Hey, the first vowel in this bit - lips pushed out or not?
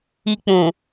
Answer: no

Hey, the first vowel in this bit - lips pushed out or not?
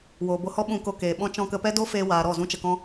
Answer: yes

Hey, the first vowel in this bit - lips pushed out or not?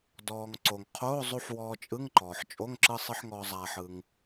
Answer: yes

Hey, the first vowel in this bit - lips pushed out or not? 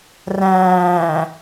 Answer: no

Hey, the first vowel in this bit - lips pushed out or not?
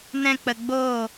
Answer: no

